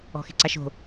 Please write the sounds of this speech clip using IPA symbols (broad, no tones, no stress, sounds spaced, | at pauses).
ɔ̤ x e̤ ǀ a ʃ o̤